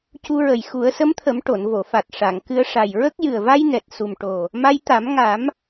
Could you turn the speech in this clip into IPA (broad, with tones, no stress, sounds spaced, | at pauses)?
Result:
c u˧ ɹ ə˨˩ j x u˨˩˦ ə̯ s ə˧˥ m t̪ʰ ə˨˩˦ m ʈ o˨˩˨ n v o˨˩˨ f a˨˩ t̚ ʂ a˨˩˨ ŋ k ɨ˧ ə̯ ʂ a˨˩ j ɹ ə˦˥ k̚ j ɨ˨˩ ə̯ v a˧ j n ɛ˨˩ t̚ s u˨˩ m ʈ o˨˩ | m a˧ j t̪ a˨˩˦ m ŋ a˨˩˦ m